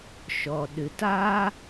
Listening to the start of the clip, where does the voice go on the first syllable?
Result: low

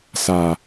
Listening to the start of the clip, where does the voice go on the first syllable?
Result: low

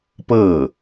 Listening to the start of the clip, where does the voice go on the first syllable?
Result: falling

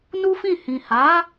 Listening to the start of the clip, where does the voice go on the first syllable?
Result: high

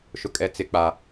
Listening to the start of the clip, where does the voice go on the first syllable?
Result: high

